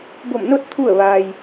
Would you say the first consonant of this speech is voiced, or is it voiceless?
voiced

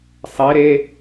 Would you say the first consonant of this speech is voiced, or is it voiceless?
voiceless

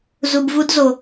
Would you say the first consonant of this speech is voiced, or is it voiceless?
voiced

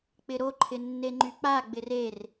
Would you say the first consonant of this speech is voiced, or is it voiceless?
voiceless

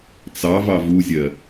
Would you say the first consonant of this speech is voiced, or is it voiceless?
voiceless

